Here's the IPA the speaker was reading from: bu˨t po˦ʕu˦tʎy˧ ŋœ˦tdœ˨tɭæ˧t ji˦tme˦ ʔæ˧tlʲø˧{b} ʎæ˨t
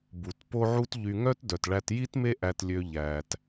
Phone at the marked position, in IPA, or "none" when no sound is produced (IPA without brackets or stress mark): none